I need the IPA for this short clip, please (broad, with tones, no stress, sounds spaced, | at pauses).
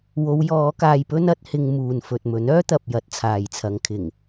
w o˨˧ w j ɔː˨˧ k aː˧ j p ɵ˥ n ɐ˨˥ t̚ h ɪ˧ ŋ m uː˨ n f ɵ˨ t̚ m ɵ˨˥ n œː˥ t̪ ɐ˨ p̚ j ɐ˨˥ t̚ t͡sʰ aː˨ j t͡sʰ ɐ˨˧ ŋ kʰ ɪ˨˩ ŋ